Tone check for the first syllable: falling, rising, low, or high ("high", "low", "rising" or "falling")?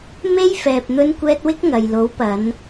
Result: high